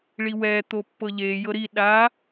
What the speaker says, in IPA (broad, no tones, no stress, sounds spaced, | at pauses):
ɭ i w ɛ t̪ o pː ɤ ʎ e j ɤ ɾ i ɗ a